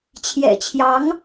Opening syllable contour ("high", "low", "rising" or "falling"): low